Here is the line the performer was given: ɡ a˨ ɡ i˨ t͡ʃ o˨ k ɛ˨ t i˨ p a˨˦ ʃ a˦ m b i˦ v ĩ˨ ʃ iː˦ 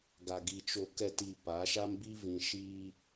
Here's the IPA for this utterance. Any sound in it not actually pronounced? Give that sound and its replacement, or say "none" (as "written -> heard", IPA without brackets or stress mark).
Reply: none